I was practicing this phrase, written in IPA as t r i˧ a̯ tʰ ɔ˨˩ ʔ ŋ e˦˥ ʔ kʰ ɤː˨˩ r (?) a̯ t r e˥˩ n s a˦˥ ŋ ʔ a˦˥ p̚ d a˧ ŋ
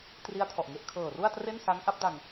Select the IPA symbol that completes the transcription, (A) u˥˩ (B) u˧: A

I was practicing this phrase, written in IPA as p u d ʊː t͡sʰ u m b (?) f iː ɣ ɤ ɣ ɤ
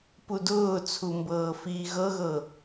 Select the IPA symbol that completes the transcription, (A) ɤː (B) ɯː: A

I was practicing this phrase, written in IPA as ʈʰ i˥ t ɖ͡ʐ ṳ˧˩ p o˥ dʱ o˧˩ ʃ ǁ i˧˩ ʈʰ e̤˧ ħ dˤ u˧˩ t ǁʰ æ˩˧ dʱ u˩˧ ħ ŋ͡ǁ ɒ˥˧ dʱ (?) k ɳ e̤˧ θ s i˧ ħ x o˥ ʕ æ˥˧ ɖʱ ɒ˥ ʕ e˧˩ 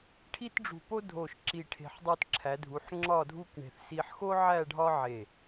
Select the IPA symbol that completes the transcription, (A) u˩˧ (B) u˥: B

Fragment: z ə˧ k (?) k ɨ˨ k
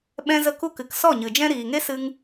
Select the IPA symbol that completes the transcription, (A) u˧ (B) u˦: A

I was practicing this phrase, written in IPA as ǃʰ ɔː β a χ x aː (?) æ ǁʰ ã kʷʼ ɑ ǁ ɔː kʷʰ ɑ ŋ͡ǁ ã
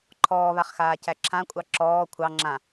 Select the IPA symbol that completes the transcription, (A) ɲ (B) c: B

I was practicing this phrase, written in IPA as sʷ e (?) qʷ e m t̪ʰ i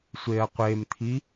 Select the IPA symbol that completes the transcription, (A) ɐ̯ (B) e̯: A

